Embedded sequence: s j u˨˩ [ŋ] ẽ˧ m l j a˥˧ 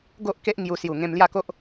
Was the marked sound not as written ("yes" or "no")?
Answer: no